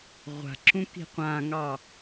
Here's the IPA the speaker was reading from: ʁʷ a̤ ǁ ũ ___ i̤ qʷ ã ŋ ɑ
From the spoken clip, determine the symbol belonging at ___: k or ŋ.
k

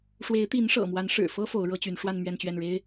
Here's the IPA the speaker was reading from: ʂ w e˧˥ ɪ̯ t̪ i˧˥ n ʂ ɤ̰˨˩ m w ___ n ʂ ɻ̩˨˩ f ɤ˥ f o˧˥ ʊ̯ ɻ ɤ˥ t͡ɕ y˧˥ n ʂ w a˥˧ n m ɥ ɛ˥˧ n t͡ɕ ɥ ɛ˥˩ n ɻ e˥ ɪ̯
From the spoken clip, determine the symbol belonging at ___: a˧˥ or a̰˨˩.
a˧˥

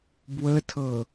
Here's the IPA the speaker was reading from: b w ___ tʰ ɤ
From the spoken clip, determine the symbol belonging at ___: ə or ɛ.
ə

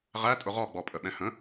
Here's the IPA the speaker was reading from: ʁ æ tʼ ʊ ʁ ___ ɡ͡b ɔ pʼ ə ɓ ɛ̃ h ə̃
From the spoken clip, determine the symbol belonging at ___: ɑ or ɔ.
ɔ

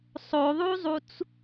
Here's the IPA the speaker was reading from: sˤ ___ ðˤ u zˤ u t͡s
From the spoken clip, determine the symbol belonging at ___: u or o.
o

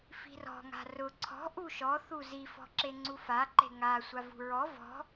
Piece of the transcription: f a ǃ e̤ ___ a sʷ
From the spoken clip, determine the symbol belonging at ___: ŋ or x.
ŋ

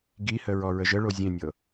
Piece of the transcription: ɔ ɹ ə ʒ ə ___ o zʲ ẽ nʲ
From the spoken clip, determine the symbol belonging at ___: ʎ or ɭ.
ɭ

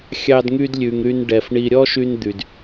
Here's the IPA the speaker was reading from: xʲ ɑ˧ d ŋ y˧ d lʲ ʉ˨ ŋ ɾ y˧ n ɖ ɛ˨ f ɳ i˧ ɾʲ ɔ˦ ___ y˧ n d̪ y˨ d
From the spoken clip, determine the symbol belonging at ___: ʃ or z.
ʃ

